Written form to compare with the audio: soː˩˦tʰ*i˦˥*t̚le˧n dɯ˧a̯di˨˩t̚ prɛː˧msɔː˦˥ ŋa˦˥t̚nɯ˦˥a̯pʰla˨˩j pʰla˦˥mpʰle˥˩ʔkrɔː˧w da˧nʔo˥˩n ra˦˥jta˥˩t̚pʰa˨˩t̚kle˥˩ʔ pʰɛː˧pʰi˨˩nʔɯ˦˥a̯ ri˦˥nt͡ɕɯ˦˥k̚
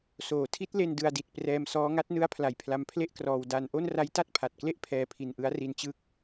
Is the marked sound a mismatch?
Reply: no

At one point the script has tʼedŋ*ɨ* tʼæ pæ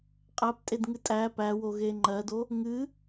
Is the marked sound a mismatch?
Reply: no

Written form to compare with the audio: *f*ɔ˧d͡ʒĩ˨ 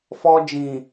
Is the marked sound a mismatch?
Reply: no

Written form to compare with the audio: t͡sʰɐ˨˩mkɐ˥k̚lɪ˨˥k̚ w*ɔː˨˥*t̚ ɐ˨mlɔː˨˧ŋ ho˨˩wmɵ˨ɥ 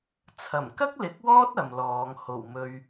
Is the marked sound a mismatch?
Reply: yes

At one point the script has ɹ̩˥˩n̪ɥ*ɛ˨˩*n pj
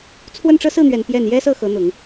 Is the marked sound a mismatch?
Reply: no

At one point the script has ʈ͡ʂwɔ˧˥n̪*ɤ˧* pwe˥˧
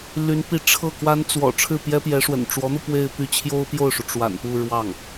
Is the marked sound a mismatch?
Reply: no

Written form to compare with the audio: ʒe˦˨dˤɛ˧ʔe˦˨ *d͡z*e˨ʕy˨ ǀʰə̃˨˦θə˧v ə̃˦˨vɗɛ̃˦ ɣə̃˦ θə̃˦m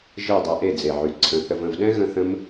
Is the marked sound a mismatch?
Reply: no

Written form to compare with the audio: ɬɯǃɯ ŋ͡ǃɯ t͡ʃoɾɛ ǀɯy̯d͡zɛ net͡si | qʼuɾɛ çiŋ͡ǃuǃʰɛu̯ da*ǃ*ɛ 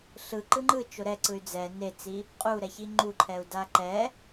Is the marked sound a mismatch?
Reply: no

